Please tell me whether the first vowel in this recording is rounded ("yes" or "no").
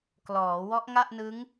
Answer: yes